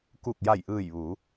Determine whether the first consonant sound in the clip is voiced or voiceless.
voiceless